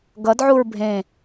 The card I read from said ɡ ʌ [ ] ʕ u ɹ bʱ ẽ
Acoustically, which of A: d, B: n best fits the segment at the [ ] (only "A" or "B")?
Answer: A